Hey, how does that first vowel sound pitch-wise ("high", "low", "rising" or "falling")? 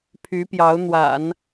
rising